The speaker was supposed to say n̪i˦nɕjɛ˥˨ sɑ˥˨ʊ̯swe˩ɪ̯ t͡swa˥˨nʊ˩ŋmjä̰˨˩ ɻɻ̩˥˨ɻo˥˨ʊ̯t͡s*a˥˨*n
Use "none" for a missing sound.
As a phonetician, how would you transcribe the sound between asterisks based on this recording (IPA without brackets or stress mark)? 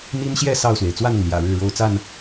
a˥˨